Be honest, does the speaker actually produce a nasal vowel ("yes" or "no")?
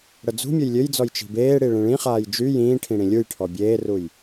yes